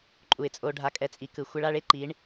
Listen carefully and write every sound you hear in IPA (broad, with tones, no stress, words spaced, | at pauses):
ǃʼu˨ɪ̯t͡sʼo˧ɖʱa˧ kʼɛ˧t͡sʼi˨kɯ˨ xʷɛ˧ɭa˧ɭe˦ ǃi˨˦ɳ